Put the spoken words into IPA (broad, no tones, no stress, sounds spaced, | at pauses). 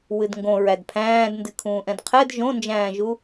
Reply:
w ɨ d ŋ ɡ õ ɹ æ d pʰ æ̃ː d n d ɨ kʰ ũː ʔ ɛ̃ d qʰ ɛ d ʒ õ n d͡ʒ æ̃ː ʒ u